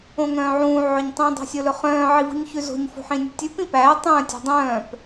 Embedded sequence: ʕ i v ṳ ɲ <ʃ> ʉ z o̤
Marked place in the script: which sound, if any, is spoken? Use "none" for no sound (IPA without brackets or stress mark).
ç